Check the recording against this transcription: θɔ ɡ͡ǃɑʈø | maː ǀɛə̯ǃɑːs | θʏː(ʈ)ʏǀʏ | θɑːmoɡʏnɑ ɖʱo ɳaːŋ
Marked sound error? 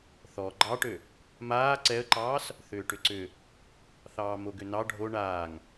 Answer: no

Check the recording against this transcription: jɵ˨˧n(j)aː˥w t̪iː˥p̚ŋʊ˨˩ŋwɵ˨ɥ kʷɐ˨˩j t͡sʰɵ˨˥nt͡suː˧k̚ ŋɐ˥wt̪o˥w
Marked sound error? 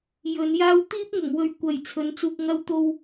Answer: no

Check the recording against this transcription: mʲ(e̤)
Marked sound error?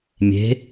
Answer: no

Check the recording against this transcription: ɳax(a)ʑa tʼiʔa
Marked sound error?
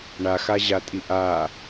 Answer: no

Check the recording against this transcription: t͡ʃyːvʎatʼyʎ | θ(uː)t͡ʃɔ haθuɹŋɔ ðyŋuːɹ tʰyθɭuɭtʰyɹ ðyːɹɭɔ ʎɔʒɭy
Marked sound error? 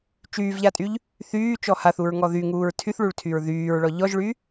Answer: yes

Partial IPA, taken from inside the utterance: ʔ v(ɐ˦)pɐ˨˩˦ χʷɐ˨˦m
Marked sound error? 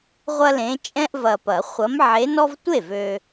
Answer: yes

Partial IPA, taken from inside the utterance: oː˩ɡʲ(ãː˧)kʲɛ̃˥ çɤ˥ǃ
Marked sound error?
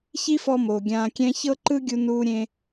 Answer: no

